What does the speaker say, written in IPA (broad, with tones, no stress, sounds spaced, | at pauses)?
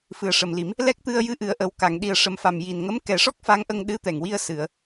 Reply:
f ɨ˨˩ ə̯ ʂ ə˨˩ m l i˨˩˦ m | l ɛ˦˥ k̚ t̪ ɨ˧ ə̯ j ɨ˧ ʔ ɨ˨˩˨ ə̯ ʔ ə˨˩ w k a˨˩˨ ŋ ɗ i˨˩ ə̯ ʂ ə˨˩ m f a˨˩ m j i˨˩ n ŋ ə˧˥ m k ɛ˨˩˦ ʂ ɔ˦˥ k̚ f a˧˥ ŋ ʔ ə˧ ŋ ɗ ɨ˧˥ t̪ ɛ˨˩ ŋ w i˧ ə̯ s ɨ˨˩˨ ə̯